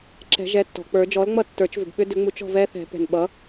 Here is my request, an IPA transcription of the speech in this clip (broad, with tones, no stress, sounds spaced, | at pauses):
ǁ ɛ̤˨˩˦ ʒ ɛ˩˥ tː ɔ̤˩ k͡p ə˞˨˩˦ d͡ʒ ɔ˩˥ l ŋ͡m ʌ˥˩ tː ə˞˨˩˦ t͡ʃ v ʏ˩ b ɓ ʏ˦˥ d ʏ˩˥ ŋ͡m u˨˩˦ t͡ʃ ɔ̤˥˩ v ɛ˦˥ θ ɛ̤˨˩˦ p ɛ̤˩ n ɓ ʌ˩˥